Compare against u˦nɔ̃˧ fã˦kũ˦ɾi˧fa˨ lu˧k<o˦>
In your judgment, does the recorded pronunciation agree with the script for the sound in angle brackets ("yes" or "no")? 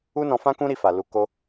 yes